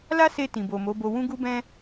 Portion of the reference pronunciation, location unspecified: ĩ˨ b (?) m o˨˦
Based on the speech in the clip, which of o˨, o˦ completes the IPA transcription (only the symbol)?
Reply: o˨